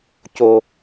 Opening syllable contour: low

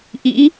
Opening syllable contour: rising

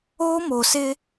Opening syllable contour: high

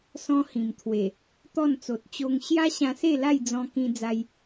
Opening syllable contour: high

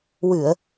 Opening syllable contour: low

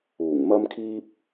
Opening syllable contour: low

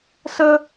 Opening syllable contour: high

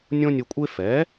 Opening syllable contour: high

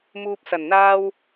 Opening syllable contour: low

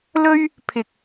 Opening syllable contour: high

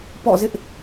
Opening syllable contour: falling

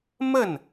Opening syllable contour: falling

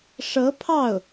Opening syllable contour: rising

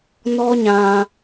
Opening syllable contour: high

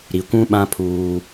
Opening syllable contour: low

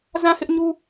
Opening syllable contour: falling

